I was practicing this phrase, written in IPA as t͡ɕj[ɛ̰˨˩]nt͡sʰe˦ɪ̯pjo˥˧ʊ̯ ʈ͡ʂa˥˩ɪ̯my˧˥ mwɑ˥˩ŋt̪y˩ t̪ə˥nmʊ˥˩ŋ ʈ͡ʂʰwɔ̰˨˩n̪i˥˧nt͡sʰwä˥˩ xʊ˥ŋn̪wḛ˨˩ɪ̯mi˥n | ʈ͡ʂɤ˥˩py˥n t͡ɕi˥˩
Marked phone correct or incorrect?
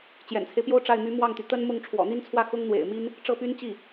correct